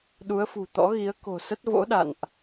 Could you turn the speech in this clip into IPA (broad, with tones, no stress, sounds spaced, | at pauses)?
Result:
ɗ u˨˦ ə̯ f ṳ˨˩ t̪ ɔ̰˧˥ ɣ i˨˦ ə̯ k o̤˨˩ s ə˦˥ t̚ v o̰˧˥ ɗ a̰˧˨ n ʔ